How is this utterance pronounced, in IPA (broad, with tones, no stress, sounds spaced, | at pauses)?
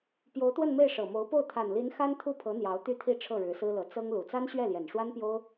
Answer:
p j o˧˥ ʊ̯ t̪ w ə˥˧ n m e˥˩ ɪ̯ ʂ ɤ˨˩ m o˧˥ ʊ̯ p o˥˩ ʊ̯ t̪ʰ a˨˩ n l i˧˥ n x a˥ n t̪ʰ u˥˩ pʰ ɤ˧˥ n̪ j ɑ˧˥ ʊ̯ t̪ y˥ t̪ʰ i˥˧ ʈ͡ʂʰ ɤ˥˩ ɻ ɻ̩˧˥ s ɹ̩˥ l ɤ˧˥ t͡s ɤ˥ ŋ l u˨˩ t͡s a˥ n ɕ ɥ ɛ˥˩ l j ɛ˨˩ n ʂ w a˥ n p j o˥ ʊ̯